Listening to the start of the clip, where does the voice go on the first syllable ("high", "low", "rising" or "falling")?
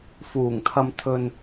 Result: low